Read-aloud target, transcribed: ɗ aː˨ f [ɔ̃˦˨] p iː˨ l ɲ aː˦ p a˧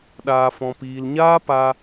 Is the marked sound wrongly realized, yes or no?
yes